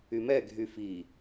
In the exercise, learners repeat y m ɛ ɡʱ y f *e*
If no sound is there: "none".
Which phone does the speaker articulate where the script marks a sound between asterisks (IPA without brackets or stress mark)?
i